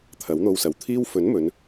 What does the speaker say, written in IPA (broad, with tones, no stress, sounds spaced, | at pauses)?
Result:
t̪ʰ ɐ˨˥ w n̪ o˧ w s ɐ˨ w t̪ʰ iː˥ w f ɵ˨˥ n m ɵ˨˧ n